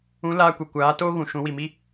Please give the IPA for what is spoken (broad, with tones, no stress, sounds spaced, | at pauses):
ũ˨˦ l aː˧ kʷ ɛ˨ kʷ aː˨˦ t oː˦ ɣ ũ˨ ʃ ũ˨˦ w i˨ m i˦